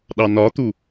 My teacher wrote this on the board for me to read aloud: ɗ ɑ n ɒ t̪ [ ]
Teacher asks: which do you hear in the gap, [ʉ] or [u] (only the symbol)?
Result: u